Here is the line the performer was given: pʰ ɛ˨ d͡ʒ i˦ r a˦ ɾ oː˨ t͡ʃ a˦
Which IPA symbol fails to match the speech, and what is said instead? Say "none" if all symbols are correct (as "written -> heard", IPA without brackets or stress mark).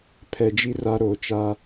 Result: none